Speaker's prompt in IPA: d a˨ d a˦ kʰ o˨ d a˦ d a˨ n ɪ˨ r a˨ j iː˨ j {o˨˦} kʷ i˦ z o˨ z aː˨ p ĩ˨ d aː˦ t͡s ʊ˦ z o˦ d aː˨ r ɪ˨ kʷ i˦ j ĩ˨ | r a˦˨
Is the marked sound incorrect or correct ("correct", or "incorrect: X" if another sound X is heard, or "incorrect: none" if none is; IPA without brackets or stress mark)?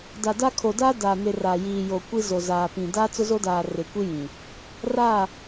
incorrect: o˨